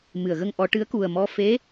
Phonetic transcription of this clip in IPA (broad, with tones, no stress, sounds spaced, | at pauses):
m ɨ˨˩˨ ə̯ ɣ ə˧ ŋ ʔ ɔ˨˩˦ ʈ ɨ˧˥ ə̯ k u˨˩ ə̯ m ɔ˧ f e˧˥